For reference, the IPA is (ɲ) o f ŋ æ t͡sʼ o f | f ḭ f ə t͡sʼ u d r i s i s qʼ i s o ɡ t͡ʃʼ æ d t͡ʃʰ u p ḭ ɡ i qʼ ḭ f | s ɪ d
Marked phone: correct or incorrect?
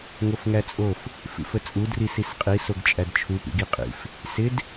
incorrect: ŋ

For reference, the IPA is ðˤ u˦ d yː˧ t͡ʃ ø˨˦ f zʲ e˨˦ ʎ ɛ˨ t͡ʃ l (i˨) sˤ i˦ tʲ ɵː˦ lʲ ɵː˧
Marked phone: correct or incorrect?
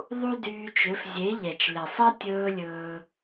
incorrect: e˨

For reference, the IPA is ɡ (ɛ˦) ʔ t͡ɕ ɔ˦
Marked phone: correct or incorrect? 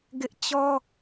incorrect: ɪ˦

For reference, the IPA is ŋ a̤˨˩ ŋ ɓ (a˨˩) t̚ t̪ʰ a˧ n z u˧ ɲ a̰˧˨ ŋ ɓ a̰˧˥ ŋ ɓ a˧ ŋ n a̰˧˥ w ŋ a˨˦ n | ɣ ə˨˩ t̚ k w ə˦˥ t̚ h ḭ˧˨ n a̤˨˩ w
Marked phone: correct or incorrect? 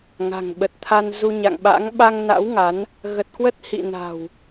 incorrect: ə˨˩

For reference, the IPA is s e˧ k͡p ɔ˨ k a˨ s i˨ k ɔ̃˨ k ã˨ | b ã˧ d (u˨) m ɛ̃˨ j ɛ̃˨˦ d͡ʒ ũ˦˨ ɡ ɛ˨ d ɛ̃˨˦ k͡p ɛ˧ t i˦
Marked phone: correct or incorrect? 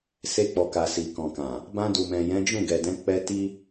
correct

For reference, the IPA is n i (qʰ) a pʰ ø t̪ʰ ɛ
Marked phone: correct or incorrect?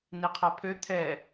correct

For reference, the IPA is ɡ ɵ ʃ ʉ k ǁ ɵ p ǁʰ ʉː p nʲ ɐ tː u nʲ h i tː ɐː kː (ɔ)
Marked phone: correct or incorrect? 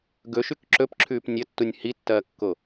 incorrect: o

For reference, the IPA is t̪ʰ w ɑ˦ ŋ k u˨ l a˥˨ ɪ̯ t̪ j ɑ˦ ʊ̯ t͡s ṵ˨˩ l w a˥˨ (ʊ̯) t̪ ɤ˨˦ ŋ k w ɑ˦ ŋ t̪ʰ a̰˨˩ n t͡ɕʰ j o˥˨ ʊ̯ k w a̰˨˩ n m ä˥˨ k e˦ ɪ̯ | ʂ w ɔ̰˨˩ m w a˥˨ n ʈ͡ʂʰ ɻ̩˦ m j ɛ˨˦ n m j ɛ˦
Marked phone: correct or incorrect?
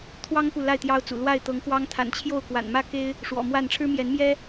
incorrect: ɪ̯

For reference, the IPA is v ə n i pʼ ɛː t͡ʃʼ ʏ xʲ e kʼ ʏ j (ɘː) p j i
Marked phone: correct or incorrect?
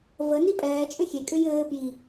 correct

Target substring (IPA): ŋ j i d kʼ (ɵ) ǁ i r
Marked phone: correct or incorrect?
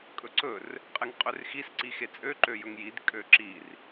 incorrect: ø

